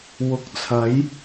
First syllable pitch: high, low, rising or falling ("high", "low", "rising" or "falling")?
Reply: rising